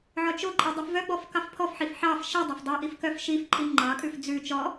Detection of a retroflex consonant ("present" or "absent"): absent